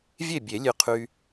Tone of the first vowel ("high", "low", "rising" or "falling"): falling